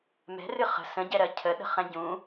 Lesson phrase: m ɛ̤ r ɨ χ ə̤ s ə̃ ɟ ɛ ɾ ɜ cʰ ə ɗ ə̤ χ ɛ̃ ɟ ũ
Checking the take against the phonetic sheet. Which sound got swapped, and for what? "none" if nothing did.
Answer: none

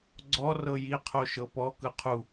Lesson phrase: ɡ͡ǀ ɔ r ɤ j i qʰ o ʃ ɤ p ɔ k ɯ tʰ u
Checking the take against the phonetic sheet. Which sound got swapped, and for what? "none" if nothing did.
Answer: tʰ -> qʰ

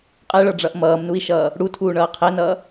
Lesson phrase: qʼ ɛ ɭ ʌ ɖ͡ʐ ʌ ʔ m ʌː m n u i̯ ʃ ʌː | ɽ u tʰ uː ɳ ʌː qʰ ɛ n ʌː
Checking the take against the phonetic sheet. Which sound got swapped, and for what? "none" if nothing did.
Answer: none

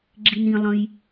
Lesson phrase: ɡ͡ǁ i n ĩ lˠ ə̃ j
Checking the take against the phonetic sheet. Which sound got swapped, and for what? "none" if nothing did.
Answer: none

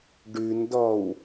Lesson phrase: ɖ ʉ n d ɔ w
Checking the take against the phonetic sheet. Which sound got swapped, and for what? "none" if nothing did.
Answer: none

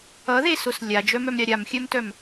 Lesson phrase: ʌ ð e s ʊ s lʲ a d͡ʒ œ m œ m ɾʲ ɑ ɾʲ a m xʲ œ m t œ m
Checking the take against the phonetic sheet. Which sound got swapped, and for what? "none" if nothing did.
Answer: none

